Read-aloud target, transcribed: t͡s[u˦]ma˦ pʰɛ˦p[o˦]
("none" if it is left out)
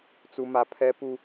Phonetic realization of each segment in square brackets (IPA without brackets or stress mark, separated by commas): u˦, u˦